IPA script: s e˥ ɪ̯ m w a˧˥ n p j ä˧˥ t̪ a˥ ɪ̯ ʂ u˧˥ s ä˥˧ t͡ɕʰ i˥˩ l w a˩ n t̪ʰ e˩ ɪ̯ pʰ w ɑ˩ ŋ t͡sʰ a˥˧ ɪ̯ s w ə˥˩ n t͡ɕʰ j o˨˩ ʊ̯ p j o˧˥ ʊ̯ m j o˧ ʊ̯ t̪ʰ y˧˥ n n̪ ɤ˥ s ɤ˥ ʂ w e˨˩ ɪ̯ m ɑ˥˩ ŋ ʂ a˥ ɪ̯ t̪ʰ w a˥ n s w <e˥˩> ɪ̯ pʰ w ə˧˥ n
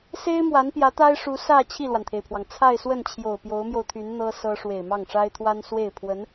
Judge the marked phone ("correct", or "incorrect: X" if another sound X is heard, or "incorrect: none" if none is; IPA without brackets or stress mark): correct